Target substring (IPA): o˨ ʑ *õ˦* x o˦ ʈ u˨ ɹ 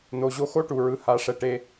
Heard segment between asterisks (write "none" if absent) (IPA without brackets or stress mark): o˦